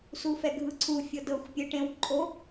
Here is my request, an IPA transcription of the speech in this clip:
s u f ɛ ɡʱ ɯ ǀʰ u fʲ ɤ d ɤ xʷ pʲ e ʈ ẽ w ǃʼ o

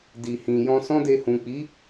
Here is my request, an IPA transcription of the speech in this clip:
d i˨ h ĩ˨ j ɔ̃˧ s ɔ̃˦ d e˧ h ũ˨ k͡p i˨˦

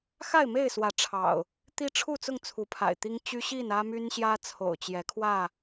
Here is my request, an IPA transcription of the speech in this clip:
x a˥˨ ɪ̯ m e˥˨ ɪ̯ s w ä˨˦ ʈ͡ʂʰ ɑ̰˨˩ ʊ̯ | t̪ i˦ ʈ͡ʂʰ u˥˨ t͡s ʊ˥˨ ŋ t͡sʰ u˨˦ pʰ a̰˨˩ ɪ̯ t̪ i˦ ŋ t͡ɕ y˦ ɕ i˥˨ n ä˦ m y˦ n ɕ j ä˦ t͡sʰ o̰˨˩ ʊ̯ t͡ɕ j ɛ˨˦ kʰ w ä˥˨

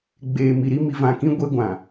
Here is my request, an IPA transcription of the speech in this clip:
ɡ͡b eː˨ m i˨ ɾ i˦ m i˨ v ã˨ k ĩ˦ ɡʷ e˦ ɡʷ ã˨

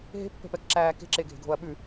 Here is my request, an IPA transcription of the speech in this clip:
ɦ e̤ pː ɛ̤ p ɛ k ǁ æː k e̤ ǁ e ɡʱ e̤ ɡʱ o ɐ̯ ɓ ʉ

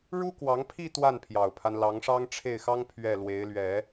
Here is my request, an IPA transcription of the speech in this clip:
ɻ u˥ k w ɑ˧˥ ŋ pʰ i˥˧ t̪ w a˥˩ n pʰ j ɑ˨˩ ʊ̯ pʰ a˦ n l ɑ˧˥ ŋ ʂ ɑ˥ ŋ ʈ͡ʂʰ e˥˩ ɪ̯ x ɑ˥ ŋ pʰ ɥ ɛ˥˩ l w e˧˥ ɪ̯ l ɥ ɛ˨˩˦

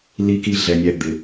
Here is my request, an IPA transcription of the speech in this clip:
l i˧ k i˧ ɮ ɛ˨ nʲ æ˧ d̪ ɪ˨

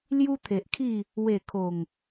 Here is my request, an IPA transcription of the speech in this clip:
l j u˦ t̪ʰ e˨ ʔ kʰ i˥˧ | w e˨˩ kʰ o˨˩ ŋ

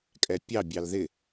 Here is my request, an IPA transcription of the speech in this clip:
kʼ ɛ pʲ ɑ bʲ ɑ l ð ɪ

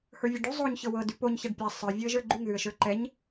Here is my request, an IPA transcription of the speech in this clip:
h ə˞ vʲ a ɖ ʉ zˤ o ɲ ç ɤ w ɤ d ʉ p o ɲ ç a ɖ pʲ a sˤ ə˞ vʲ o ə̯ ʒ ə˞ ɡ͡ǃ ʉ ŋ ð ʉ ə̯ ʃ ə˞ ǃ ɛ ɲ

